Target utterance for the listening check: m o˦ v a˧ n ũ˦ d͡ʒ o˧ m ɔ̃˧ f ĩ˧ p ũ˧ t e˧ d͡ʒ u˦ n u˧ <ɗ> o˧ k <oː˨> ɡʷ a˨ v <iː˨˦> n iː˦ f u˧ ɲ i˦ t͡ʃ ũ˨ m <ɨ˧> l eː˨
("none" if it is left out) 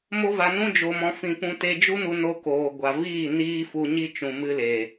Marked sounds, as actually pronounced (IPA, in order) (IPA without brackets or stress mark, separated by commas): n, oː˨, iː˦˨, ɨ˧